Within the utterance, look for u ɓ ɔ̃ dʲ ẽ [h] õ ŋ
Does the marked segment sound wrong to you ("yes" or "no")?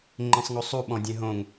yes